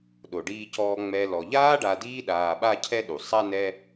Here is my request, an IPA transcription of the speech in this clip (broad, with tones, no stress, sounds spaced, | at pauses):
ɗ o˩ ɖ iː˨ c ɔː˨ ŋ͡m ɛ˨ l ɔ˩ ʎ aː˥ ɖ a˨ d iː˦ ɗ aː˨ ɓ a˦ cʰ ɛ˦ ɗ u˩ sˤ a˥ n ɛ˦